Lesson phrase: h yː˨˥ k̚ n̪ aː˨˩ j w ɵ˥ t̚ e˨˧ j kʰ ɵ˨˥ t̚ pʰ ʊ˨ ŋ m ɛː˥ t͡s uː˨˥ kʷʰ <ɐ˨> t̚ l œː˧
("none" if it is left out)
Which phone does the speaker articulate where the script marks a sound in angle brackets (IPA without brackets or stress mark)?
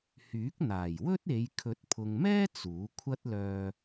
ɐ˥